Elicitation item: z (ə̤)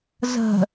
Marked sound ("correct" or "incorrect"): correct